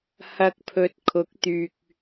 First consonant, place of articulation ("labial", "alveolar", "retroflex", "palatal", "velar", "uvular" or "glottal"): glottal